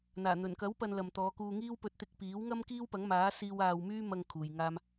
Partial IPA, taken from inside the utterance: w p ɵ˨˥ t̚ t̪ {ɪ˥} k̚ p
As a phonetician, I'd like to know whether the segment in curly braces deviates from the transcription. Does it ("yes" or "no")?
yes